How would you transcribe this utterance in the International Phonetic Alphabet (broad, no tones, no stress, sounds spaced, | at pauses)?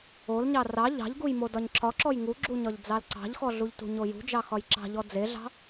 o l ɲ ɑ r ɑ ʎ ɑ̤ ʎ ɡ u j m o d ɒ ɲ ǁʰ ɒ ǁ ɔ j ŋ u ɡ͡ǁ u ɲ ɒ ʎ d͡z ɑ l ǀ ɑ̤ ʎ x ɔ ɮ u ʎ t ṳ ɲ o j ṳ d͡ʒ ɑ x ɒ j ǁ ɑ̤ ʎ ɔ d͡z e ɮ ɑ̤